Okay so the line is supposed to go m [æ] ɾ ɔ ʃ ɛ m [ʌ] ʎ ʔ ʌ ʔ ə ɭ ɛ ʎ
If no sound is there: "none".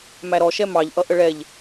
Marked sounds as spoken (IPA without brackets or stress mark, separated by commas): æ, ɑ